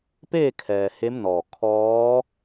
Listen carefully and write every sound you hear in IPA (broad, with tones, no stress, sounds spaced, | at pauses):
p eː˥˨ kʰ ɛː˩ h e˧˥ m n ɔː˧˩ kʰ ɔː˧˥